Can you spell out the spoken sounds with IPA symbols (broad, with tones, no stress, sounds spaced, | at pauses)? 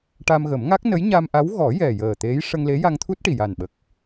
ʈ a˧ m ɣ ə˨˩˦ m ŋ a˦˥ k̚ n ə˧˥ j ɲ a˧ m ʔ a˧˥ w ɣ ɔ˨˩˦ j ɛ˨˩ j əː˨˩ t̪ e˧˥ j ʂ ə˧ ŋ l e˧˥ j a˧ ŋ t̪ʰ u˦˥ t̚ ʈ i˨˩ j a˨˩ n ɓ ə˨˩ k̚